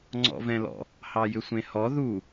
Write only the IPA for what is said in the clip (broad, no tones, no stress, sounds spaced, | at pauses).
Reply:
ŋ͡ǀ ɔ̰ v ɛ̃ l ɔ̰ | h ɑ j ʏ sʷ ẽ h ɔ ð u